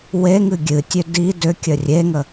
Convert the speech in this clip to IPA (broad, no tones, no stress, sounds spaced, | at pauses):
w e ŋ ɨ ɡʲ ɨ tʲ ø d i d ʏ kʲ ə rʲ e ŋ ə